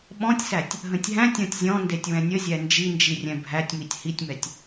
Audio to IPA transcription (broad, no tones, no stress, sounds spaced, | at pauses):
ɓ ɔ̃ tʲ s æ tʲ | ɦ ə̃ tʲ ɦ æ̃ tʲ ɔ̃ tʲ zʲ ɔ̃ n d e tʲ w ɛ̃ nʲ ə zʲ æ n d͡ʒ i n d͡ʒ i rʲ ɛ̃ bʱ æ tʲ m i tʲ h i tʲ m ɛ tʲ